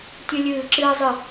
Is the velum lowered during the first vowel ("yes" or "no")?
no